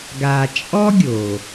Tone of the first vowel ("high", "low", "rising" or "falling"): low